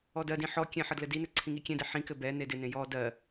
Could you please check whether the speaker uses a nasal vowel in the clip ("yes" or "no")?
yes